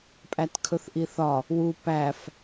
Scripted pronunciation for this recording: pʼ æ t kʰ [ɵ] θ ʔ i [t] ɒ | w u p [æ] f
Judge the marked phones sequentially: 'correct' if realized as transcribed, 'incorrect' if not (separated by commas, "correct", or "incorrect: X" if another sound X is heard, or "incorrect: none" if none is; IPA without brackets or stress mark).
correct, incorrect: θ, correct